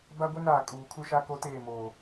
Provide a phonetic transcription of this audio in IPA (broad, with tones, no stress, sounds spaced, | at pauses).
b a˦ ɡʷ e˦ n aː˨ kʼ uː˨ kʰ u˦ ʃ a˦ k o˦ t eː˦˨ m oː˨